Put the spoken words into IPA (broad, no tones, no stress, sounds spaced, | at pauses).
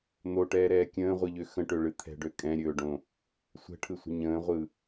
n̪ o ʈ ɛː ɾ ɛː kʲ ə̃ː ʁʷ ɨ ʎ ø x ə̃ ʈ ø ɭ ɨ t̪ʰ ɛ̤ ɖ ø kʼ ɛ̃ ɾʲ ɵː ɖ õ | sʷ ɛ̤ ʈʰ ɯ sʷ ə̤ ɲ ə̃ː ʁʷ ɯ